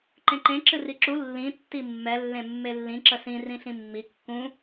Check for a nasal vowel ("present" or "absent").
present